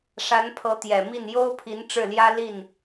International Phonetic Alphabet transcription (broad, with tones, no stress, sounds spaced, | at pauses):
ʂ a˧˥ n pʰ ɤ˧˥ t̪ j ɛ˨˩ m i˥˩ n j o˥ ʊ̯ pʰ i˧˥ n ʈ͡ʂ ɻ̩˥˩ l j ä˥ l i˥˩ n